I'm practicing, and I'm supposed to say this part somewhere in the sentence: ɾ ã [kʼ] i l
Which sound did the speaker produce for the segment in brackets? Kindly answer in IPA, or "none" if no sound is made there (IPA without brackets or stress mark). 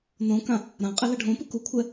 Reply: qʼ